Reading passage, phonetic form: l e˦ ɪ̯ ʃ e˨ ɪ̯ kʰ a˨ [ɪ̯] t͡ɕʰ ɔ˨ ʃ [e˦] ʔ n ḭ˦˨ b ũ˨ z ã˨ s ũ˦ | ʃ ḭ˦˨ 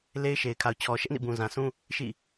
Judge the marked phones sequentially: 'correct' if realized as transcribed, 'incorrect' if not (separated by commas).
incorrect, incorrect